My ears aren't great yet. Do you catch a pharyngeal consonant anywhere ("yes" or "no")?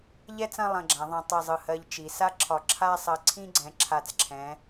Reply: no